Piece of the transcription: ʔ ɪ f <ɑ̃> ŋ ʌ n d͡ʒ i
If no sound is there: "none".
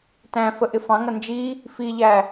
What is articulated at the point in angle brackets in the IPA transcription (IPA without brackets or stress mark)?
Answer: ɑ̃